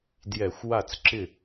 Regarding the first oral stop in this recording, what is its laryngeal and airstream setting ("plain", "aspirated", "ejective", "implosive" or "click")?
plain